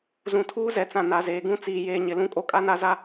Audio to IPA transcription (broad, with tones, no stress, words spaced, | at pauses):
zũ˨tʰuː˦zɛ˨t͡sã˨ na˨zeː˨ɡũ˦ t͡siː˨jeː˨ɲɪ˨ lũ˦kʼo˦kʼa˦na˦ za˦